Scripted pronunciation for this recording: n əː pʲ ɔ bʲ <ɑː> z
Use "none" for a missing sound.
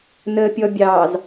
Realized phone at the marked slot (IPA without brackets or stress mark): ɑː